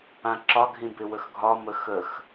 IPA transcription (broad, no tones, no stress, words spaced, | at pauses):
ãǁɒɡʱĩ bɪwəxɡʱɒmə xəx